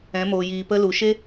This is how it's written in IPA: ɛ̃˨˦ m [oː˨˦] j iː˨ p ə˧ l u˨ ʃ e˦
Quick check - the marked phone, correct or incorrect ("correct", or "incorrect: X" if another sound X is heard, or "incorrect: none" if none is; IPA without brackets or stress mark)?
incorrect: oː˨